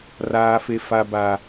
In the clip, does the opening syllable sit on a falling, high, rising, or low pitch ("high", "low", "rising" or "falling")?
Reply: low